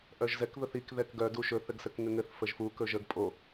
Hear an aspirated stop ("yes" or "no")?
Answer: no